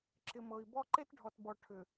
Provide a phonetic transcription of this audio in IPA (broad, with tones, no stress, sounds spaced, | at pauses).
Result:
ǁ ɪ˨ m ɤ˨ i̯ b ɔ˦ ǃ e˦ t ɖʱ ɔ˨ t b ɔ˨ ʈʰ ʏ˨